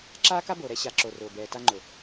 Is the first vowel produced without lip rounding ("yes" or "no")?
yes